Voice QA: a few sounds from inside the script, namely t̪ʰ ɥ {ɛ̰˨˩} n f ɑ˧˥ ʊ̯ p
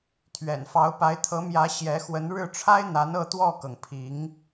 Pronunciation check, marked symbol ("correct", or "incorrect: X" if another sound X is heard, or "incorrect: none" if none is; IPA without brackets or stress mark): correct